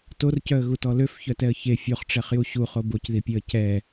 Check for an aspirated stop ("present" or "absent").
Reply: absent